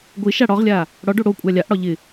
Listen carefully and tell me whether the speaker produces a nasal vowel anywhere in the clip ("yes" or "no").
no